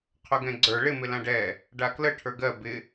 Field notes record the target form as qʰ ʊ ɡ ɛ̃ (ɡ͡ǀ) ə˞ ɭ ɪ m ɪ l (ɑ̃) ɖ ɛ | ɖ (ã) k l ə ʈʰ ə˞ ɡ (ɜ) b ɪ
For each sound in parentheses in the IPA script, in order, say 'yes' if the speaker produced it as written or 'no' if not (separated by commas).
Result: yes, no, no, yes